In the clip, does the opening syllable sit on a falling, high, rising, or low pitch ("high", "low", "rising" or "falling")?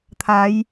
rising